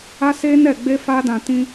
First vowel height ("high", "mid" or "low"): low